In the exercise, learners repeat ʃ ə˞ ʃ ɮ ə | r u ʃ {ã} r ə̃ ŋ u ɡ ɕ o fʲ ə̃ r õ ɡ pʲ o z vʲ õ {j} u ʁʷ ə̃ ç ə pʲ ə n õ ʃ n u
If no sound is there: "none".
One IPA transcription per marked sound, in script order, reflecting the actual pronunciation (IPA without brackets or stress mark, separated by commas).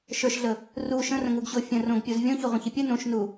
ə̃, ç